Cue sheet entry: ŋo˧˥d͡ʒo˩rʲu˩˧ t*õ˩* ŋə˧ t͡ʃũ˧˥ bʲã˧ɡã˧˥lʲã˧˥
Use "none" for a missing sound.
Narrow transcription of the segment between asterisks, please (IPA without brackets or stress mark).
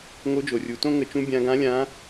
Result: õ˥